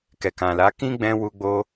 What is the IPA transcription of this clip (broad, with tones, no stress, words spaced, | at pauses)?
kɛ˨kã˨la˨˦ kĩ˦ɡ͡bɛ̃˧ wu˧ɡ͡bo˧